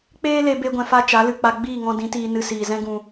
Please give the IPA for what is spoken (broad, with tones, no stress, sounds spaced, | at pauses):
k͡p eː˦ l e˧ b e˧ ɡʷ ɛ̃˨ f a˧ t͡ʃ a˨˦ l ɨ˨ k͡p a˧ ɡ͡b iː˦˨ ŋ ɔ̃˧ d ĩ˨˦ t iː˧ n ɨ˧ s iː˨ z ɛ̃˦ ɡ ũ˧